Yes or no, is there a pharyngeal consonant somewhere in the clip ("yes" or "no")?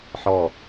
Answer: yes